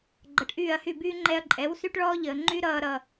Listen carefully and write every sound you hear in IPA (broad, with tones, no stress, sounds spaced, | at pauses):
ɡ͡ǃ ʌ˨ ʈ ʔ yː˦˨ ɐ̯ h y˦˨ b yː˦ ŋ͡ǃ ɛ˧ ɐ̯ ǃʼ ɛ˨˦ w s y˦ ʈ ɭ ɔː˦ ʎ əː˨ ŋ͡ǃ y˦ ɾ ʌː˦ ɾ ʌ˧